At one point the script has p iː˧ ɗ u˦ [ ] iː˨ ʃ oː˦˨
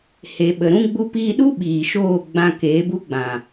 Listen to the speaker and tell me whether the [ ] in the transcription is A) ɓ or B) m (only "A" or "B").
A